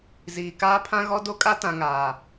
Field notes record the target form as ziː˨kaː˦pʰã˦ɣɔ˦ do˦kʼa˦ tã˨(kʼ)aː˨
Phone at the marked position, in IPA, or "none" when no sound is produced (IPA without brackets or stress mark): ŋ